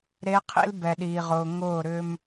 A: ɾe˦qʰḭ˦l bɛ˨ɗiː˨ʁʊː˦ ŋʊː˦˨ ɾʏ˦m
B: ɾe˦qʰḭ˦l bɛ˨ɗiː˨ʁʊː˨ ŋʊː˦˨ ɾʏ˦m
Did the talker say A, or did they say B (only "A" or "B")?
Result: B